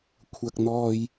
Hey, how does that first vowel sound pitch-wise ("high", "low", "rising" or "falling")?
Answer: low